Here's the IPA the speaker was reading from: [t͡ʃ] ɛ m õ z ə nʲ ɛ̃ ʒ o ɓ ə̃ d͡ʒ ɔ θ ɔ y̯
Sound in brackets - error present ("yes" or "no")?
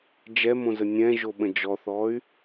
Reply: yes